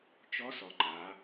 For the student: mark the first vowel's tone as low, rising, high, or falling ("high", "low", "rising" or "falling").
rising